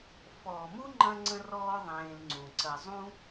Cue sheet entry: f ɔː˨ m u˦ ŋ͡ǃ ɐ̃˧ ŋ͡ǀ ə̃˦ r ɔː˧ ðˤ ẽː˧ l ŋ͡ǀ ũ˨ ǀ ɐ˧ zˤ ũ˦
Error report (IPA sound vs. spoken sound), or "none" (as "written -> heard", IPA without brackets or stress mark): none